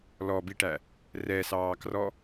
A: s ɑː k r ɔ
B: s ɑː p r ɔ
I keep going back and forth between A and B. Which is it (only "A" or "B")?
A